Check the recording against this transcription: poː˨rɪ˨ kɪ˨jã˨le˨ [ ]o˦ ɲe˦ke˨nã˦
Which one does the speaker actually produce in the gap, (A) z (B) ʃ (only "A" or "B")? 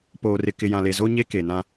A